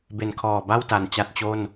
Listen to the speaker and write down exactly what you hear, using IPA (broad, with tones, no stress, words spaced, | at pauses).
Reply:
be˨˩nkʰɔː˨˩ ba˥˩wta˨˩n t͡ɕa˦˥t̚t͡ɕo˥˩n